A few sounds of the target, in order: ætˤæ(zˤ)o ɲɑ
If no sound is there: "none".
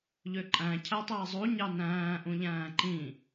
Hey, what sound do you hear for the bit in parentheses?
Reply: zˤ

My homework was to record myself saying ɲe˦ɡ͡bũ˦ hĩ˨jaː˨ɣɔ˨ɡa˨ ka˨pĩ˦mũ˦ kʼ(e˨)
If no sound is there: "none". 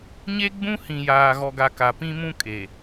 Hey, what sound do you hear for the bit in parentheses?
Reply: e˨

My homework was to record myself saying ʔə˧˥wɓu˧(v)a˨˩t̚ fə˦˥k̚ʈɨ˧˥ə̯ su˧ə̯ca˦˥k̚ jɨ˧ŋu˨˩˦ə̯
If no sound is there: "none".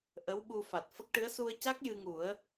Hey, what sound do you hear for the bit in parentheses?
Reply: f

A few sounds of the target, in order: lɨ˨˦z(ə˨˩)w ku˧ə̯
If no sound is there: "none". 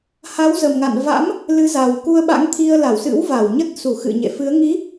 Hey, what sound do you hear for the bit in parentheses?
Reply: a˨˩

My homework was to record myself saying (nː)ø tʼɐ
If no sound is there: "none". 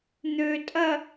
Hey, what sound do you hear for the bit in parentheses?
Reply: n̪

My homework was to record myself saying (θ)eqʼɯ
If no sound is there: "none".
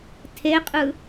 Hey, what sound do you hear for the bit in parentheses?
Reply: tʰ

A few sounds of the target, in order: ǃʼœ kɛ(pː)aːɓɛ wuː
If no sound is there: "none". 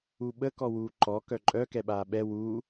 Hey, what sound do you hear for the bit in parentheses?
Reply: ɓ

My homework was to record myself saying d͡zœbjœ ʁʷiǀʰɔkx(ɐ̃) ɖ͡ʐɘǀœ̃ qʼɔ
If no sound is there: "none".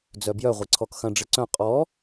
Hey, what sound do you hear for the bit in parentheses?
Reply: ɐ̃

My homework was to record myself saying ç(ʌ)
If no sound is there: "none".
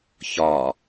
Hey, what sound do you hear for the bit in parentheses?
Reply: ɒ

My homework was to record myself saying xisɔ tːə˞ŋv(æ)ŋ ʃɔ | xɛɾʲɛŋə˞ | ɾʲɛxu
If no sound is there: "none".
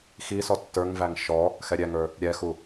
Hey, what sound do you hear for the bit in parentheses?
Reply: æ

